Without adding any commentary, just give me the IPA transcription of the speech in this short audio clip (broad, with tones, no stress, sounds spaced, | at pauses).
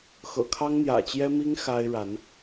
x ɤ̰˨˩ kʰ ɑ˦ ŋ n̪ j ä̰˨˩ t͡ɕ j ɛ˦ m i˦ ŋ x a˦ ɪ̯ ɻ a˨˦ n